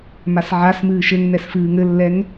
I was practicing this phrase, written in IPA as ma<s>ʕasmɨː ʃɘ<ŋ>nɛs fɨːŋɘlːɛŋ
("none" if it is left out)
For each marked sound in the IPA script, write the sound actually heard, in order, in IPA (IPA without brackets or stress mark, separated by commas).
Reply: s, ŋ